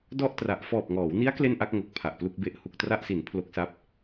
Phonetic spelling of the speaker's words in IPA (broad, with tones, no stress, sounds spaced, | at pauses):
d ɔ˥˩ ʔ t r a˨˩ ʔ f ɔː˨˩ p̚ ŋ ɔː˩˦ w n i˦˥ a̯ k l e˥˩ n ʔ a˥˩ k̚ ŋ o˨˩ k̚ pʰ a˨˩ ʔ p l u˥˩ k̚ b e˦˥ ʔ h u˨˩ k̚ t r a˥˩ ʔ s i˩˦ n pʰ l o˦˥ k̚ s a˦˥ p̚